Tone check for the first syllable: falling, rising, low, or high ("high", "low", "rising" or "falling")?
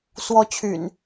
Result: high